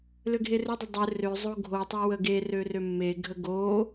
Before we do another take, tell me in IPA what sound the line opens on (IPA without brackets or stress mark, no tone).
l